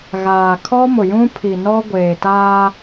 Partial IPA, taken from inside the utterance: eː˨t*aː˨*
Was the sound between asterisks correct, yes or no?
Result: no